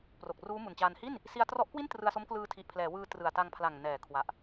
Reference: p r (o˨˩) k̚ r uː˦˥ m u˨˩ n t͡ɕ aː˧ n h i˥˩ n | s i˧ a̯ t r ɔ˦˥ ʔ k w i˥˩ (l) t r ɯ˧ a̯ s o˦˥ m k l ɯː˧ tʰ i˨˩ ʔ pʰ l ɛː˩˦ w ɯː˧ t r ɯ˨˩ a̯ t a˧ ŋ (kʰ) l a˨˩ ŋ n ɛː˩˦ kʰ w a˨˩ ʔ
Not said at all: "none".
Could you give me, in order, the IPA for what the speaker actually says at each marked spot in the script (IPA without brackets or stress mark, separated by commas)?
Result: o˨˩, n, pʰ